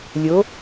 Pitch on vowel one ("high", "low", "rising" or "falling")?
rising